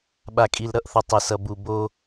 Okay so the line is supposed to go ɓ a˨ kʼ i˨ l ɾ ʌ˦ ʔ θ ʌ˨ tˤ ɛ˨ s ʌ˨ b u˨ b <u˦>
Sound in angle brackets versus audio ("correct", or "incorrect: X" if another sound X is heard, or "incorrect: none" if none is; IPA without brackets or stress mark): incorrect: o˦